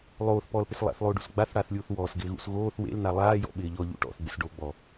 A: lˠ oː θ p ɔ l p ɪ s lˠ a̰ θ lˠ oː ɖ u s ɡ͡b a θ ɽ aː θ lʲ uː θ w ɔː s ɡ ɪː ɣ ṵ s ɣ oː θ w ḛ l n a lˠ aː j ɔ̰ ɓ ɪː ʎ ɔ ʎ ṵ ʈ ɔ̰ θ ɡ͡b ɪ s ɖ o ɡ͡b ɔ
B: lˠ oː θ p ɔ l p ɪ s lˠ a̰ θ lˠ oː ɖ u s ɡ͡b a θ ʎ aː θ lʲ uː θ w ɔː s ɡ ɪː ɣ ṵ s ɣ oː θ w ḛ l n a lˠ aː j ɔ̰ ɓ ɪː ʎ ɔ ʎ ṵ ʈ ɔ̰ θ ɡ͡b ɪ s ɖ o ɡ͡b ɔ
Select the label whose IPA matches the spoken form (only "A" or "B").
A